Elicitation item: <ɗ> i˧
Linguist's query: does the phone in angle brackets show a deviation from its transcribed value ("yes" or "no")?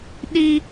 no